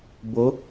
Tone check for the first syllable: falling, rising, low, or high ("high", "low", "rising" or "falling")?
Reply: rising